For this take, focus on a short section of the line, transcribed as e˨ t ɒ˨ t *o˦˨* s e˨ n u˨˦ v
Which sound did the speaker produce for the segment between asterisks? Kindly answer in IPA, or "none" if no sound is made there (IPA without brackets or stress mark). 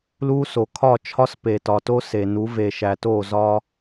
o˦